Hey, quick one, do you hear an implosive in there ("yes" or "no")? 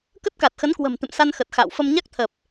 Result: no